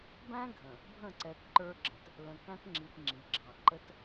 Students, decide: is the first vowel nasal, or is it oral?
nasal